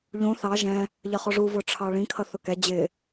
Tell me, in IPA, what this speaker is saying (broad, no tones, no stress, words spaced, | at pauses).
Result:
ʎũ θɑ ʒɛ̃ | ʎʌχɔʐu vʊʈ͡ʂʰɑɭĩ kʰʌθʊkɛ d͡ʑɪ